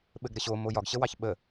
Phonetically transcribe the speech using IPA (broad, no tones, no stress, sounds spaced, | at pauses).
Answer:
ɓ ɘ ɡ ɾ ɘ ɕ o m o j ɒ ɡ ɕ ə w ɑ ç ɓ ə